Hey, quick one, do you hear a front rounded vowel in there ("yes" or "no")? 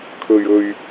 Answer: no